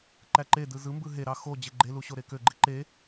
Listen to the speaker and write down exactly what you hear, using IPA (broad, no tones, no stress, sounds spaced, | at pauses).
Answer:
ǃ æ ǃ e d ɯ z ɯ m b ɯ ɦ e ɾ ɑ x o d͡ʑ e ɡ͡ǃ e l u ɕ o ɾ e k ø ɡ͡ǃ i ǃ e